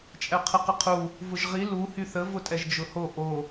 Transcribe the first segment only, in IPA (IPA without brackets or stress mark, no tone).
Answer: t͡ʃʼ